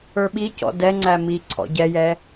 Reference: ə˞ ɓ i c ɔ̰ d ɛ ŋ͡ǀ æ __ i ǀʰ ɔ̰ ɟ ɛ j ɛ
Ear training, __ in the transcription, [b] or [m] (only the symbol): m